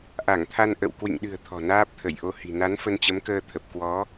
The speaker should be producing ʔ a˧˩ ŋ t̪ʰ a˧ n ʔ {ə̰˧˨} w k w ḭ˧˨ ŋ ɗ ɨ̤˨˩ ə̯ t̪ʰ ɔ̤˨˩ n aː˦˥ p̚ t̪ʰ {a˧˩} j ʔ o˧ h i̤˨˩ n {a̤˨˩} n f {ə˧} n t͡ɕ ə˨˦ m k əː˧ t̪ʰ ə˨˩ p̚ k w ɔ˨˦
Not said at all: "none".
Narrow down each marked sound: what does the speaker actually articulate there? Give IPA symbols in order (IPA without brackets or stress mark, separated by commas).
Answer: ə̰˧˨, ə˧˩, a˨˦, ə˧